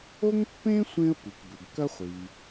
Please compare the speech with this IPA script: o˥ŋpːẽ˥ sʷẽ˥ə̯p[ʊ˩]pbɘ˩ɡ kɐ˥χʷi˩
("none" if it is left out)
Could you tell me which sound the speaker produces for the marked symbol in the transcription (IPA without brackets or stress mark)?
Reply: u˩